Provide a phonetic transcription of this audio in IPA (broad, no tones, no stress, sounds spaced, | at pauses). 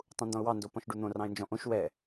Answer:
tˤ ũ n d ɔ̃ ʊ̯ w ɑ n d o p ɔ̃ ʃ ɖ u n̪ õ r ɑ̃ ɪ̯ n d͡ʒ ɔ̃ ʔ õ ʃ w ɛ